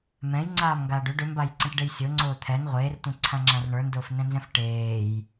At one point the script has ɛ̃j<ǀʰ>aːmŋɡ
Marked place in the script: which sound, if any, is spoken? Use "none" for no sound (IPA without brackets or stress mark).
ŋ͡ǀ